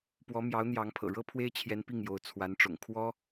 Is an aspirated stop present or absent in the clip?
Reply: present